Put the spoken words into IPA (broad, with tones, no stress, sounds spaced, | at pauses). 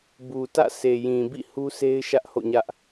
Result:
b u˨ t ä̰˦˨ s e˨ j ĩ˨ b ḭ˦˨ h u˦ s e˦ ɪ̯ ʃ ä˦ ʔ h o̰˦˨ ɲ ä˦ ʔ